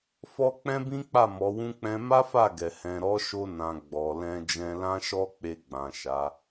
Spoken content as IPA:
f ɔ˦ k͡p ɛ̃˦ b ĩ˦ k͡p a˦˨ m ɔ˨˦ w ũ˦ k͡p ɛ̃˧ m a˦ f a˦˨ ɡ ɛ˨ h ɛ̃˨ ɾ ɔ˨˦ ʃ o˧ n ã˨ ɡ͡b ɔ˨ l ɛ̃˧ d͡ʒ ɛ̃˧ l ã˦ ʃ ɔ˦ k͡p e˧ ɡ͡b ã˨ ʃ a˨˦

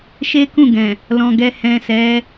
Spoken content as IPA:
ʃ e˦ k ũ˦˨ ɡ ɛ̃˨ | l ɔ̃˧ ɡ ɛ˨ h ɛ̃˨ s ɛ˨˦

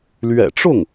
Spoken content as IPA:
l ɥ ɛ̰˨˩ ʈ͡ʂ ʊ˥˩ ŋ

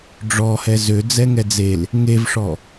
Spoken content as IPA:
ɖ͡ʐ ɔ h ɛ z ø d͡z ɛ ŋ ɛ d͡z e l | ŋ e v ʂ ɔ

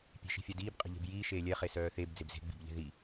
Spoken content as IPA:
pʲ e̤ ʃ i̤ fʲ a d iː b qʼ e̤ ʎ e̤ b j iː ʃ eː lʲ ɛ χ e s œː θ e b d͡z e b z e̤ ɡ͡b i̤ b ʎ e̤ ð i

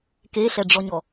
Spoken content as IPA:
k e ɬ ɛ ɖ͡ʐ ɔ ɲ ɔ

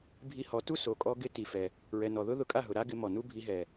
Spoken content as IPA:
bʱ i˧ h ɔ˨˦ t u˦ s o˨ kʼ ɔ˦ ɡ ɪ˦ t i˨ f ɛ˨ | ɹ ɛ˨ n ɔ˨ ð ʊ˦ ð ʊ˧ kʼ a˦˨ ɦ ʊ˨ ɾ a˦ ɡ ɪ˧ m ɔ˨ n u˦ bʱ i˧ ɦ ɛ˨

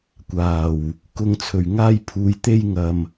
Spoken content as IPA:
kʷ aː˨˩ w | k ʊ˨ ŋ t͡sʰ ɵ˨˩ ɥ ŋ aː˧ j pʰ uː˨ j t̪ e˥ j ŋ ɐ˨ m

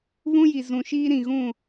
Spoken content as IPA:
β ũ˦ j i˨ z ũ˨ ʃ iː˦ ɾ ĩ˨ ɣ ũ˦˨

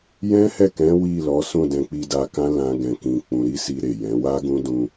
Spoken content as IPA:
j ɛ̃˦ h ɛ˦˨ k ɛ̃˨˦ w i˦˨ l ɔ˨˦ s ũ˦˨ d ɛ̃˧ k͡p i˧ d a˧ k ã˦ l ã˦ ɡ ɛ̃˧ k ĩ˧ k͡p ũ˧ ɾ i˦ s i˧ ɾ e˨ j ɛ̃˨˦ w a˦ ɡ ũ˦ d ũ˧

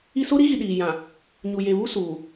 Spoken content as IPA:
i˦ s o˦ ɾ i˦ ɣ i˨ ɗ iː˨ j ã˨ | ɲ u˨ j e˨ β u˦ s uː˨

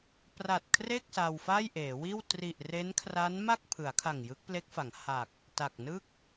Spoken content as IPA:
p r a˨˩ t̚ kʰ r e˥˩ k̚ s a˧ w f a˥˩ j ʔ eː˩˦ w iː˥˩ w t r i˨˩ ʔ r e˦˥ n kʰ r a˦˥ n m a˥˩ k̚ pʰ ɯ˩˦ a̯ kʰ a˨˩ ŋ j ɯ˦˥ k̚ p l e˦˥ k̚ f a˩˦ ŋ h a˨˩ k̚ | t a˨˩ k̚ n ɯ˥˩ k̚

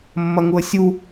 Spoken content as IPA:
mː ɐ ŋ u ə̯ sʲ u

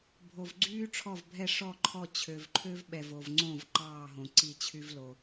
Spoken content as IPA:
bʱ o˨˩ v ɡ͡ǀ yː˥ ʈ͡ʂʰ ɔ˥˩ v bʱ ɛ˥˩ ʂ ɔ˥˩ ǃʰ ɔ˥˩ t͡ɕʰ ø˨˩ v ǃʰ ø˥ v ɓ ɛ˨˩ v o˨˩ v ŋ͡ǀ õ˥˩ v ǃ ɑː˥˩ ɦ õ˨˩ ǀ i˥˩ t͡ɕʰ y˥ v l o˨˩

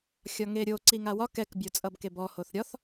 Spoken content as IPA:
xʲ ɒ ŋ e ɾʲ o ǀ i ŋ a w ɒ k ɛ k bʲ o t͡sʼ ʌ b k e b ɔ h o θ ɾʲ ɒ θ

